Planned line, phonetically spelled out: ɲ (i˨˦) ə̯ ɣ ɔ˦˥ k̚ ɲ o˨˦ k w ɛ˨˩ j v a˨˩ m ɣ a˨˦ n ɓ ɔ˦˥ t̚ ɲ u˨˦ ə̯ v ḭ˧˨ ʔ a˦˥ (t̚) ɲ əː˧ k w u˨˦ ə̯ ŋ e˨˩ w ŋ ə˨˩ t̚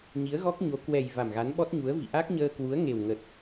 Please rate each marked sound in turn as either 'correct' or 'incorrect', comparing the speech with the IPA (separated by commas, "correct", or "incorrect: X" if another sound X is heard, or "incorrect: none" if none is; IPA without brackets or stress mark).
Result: correct, incorrect: k̚